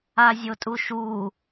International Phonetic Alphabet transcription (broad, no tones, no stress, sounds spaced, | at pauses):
a zʲ o tʼ u ʃ u